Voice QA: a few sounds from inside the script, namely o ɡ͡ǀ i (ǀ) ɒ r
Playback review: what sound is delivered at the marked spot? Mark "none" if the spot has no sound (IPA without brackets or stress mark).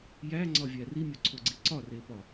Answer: ǀ